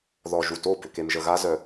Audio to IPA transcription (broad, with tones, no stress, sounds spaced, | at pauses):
ð ɔ˨ ʒ u˨ t o˦˨ b ʏ˨ k e˨ m ʒ ə˨ ɣ a˦ z œ˨